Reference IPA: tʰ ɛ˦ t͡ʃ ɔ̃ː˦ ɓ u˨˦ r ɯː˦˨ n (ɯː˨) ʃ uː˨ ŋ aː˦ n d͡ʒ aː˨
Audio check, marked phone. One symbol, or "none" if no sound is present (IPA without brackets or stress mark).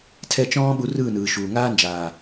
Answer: ɯː˨